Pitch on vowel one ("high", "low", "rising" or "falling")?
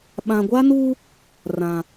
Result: low